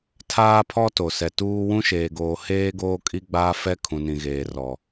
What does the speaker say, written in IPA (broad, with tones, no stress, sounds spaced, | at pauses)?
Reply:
tʰ aː˦ pʰ ɔ˦ t o˨ s ɛ˨ t uː˦ w ũ˦ ʃ eː˨ ɡ oː˨ h eː˦ ɡ oː˦ kʼ i˦ ɡ͡b aː˦ f ɛ˦ kʰ ũ˨ n ĩ˨ ɣ eː˨ r ɔ˨